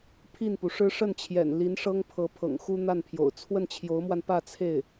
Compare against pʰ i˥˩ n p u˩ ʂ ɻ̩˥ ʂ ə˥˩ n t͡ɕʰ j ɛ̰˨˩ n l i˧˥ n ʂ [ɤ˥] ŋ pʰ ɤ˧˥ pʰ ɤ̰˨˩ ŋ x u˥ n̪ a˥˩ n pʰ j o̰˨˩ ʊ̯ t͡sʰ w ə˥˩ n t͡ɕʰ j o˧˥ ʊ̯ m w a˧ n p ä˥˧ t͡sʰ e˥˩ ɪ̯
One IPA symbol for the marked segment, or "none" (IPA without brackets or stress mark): ɤ˥